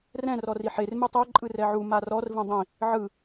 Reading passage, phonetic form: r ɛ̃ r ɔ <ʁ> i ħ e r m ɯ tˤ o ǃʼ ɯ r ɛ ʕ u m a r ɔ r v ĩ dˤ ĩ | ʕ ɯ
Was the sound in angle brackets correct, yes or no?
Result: no